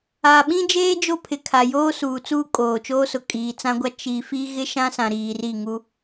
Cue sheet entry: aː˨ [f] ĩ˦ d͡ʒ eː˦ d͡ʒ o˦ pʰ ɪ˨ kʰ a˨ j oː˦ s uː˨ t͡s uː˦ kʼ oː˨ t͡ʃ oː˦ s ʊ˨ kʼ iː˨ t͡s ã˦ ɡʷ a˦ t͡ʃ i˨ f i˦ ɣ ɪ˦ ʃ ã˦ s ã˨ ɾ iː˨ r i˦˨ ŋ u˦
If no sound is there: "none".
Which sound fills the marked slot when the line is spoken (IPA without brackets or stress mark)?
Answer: ɓ